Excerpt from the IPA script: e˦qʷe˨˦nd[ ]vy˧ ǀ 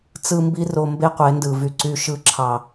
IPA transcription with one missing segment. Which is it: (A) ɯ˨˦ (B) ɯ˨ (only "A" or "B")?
B